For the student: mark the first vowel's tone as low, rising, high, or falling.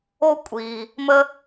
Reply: high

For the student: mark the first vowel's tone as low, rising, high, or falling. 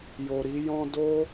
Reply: low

